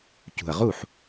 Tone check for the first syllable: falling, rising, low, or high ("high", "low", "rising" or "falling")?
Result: low